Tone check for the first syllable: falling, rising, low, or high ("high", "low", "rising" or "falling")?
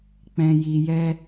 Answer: low